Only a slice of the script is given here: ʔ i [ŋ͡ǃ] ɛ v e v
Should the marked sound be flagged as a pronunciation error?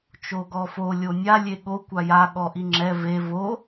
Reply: yes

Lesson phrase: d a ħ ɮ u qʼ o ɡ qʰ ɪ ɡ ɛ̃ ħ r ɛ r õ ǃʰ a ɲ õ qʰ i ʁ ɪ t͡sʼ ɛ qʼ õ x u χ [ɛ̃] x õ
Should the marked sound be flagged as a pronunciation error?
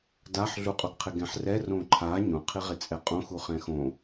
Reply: no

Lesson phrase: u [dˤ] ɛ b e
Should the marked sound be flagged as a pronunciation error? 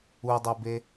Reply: no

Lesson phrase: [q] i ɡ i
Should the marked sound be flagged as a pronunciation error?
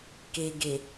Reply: yes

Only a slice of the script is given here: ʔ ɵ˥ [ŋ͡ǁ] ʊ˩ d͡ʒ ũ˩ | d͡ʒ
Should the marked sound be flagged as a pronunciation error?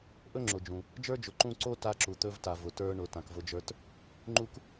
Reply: no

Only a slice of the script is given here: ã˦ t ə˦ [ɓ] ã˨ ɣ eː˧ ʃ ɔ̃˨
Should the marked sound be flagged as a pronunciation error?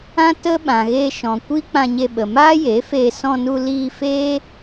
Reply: no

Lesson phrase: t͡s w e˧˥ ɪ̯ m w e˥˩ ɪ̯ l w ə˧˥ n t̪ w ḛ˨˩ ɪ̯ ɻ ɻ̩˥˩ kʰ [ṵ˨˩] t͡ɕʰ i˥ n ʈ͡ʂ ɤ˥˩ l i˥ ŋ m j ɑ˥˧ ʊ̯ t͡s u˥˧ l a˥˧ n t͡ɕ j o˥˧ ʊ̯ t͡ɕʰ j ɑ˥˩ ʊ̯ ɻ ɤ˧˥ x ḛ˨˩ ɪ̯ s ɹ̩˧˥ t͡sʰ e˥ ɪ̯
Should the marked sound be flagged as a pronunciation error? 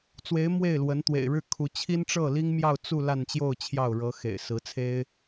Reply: yes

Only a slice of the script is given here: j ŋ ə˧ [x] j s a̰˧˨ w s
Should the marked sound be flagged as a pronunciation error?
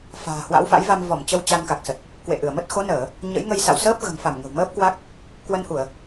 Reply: yes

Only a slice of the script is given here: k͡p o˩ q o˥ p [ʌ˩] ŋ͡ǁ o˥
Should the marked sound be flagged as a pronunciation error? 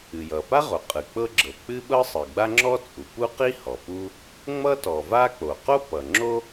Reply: no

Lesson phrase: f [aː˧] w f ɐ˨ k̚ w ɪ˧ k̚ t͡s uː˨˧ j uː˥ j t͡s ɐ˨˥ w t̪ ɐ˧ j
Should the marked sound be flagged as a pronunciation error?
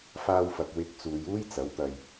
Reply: no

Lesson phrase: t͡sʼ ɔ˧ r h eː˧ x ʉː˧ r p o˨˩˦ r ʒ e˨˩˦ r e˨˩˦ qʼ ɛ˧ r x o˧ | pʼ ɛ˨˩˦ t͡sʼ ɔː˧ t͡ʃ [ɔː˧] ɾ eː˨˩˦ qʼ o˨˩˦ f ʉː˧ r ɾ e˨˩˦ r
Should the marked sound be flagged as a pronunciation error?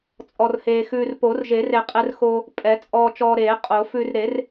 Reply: no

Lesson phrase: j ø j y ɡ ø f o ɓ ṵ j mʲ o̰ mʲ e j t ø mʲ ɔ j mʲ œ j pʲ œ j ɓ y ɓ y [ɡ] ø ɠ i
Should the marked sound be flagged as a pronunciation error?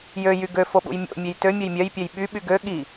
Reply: no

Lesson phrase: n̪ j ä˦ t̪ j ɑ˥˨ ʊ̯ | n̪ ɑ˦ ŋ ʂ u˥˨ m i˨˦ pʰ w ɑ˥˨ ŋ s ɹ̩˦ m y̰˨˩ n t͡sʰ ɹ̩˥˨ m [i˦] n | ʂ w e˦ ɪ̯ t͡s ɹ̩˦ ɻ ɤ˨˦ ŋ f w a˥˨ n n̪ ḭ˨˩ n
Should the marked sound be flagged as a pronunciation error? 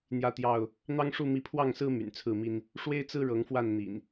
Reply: no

